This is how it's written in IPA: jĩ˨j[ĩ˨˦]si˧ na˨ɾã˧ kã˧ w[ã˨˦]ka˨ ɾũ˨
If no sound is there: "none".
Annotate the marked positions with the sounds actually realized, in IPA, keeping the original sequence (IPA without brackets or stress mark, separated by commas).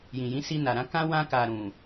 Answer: ĩ˨˦, ã˧